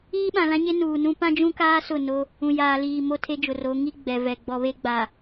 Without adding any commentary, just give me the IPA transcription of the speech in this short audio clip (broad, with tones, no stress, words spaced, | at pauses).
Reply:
iː˦ɓã˨lã˦ɲe˦ nuː˨nũ˦ pã˦d͡ʒũ˦kaː˦ sʊ˦˨no˦ | ũ˨jaː˨liː˨ mo˦tʰe˦d͡ʒʊ˨ro˨˦ ŋi˦ ɡ͡bɛ˨vɛ˨ ɡ͡bɔ˨βe˦ɡ͡ba˨